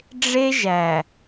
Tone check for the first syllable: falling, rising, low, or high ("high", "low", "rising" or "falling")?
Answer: high